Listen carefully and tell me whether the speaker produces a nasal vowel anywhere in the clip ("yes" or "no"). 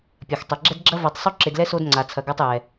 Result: no